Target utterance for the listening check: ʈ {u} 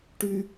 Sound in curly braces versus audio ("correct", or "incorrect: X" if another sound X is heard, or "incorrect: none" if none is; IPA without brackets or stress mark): incorrect: y